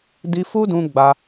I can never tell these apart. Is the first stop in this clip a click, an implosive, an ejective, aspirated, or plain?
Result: plain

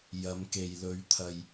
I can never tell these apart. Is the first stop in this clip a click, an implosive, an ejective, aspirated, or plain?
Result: plain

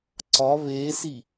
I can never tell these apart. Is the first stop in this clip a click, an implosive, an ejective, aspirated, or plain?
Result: click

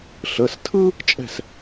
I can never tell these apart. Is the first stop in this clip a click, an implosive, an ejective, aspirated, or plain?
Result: aspirated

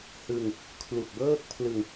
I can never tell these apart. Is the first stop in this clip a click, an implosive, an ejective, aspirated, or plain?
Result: aspirated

